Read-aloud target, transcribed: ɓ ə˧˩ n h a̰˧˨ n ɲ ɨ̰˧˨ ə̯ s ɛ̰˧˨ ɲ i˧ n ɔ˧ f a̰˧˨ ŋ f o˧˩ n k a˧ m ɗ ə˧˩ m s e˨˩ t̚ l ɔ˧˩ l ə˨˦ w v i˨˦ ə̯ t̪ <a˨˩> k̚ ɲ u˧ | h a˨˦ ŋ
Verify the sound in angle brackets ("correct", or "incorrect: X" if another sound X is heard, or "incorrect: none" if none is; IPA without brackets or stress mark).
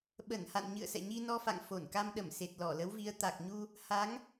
correct